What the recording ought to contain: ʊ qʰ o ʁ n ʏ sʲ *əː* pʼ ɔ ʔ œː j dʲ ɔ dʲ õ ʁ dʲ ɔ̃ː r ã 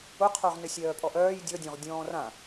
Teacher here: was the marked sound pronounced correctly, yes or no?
no